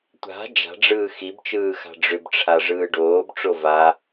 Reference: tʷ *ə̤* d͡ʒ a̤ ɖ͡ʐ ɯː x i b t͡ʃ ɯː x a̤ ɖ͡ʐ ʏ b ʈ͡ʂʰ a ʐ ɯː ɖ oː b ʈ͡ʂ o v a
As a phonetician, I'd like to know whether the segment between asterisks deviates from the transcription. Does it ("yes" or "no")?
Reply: yes